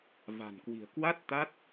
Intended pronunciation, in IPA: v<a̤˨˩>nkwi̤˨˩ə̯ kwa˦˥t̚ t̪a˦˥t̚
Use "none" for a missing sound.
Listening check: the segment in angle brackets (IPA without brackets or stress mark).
a̤˨˩